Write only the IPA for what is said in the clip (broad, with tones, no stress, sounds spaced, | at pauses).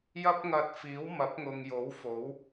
j ɐ˥ p̚ ŋ ɐ˧ t̚ f iː˨˥ w m ɐ˨˥ p̚ ŋ ʊ˨ ŋ j o˨˥ w f o˨˥ w